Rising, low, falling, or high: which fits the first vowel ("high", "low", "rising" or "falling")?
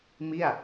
falling